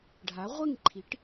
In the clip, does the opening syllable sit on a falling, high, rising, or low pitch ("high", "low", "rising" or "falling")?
rising